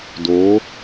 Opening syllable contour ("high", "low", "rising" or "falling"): rising